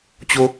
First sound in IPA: t͡ɕ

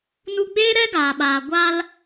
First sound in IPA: n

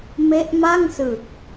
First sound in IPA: m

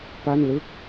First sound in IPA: p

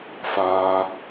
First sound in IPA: f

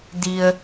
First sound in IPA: d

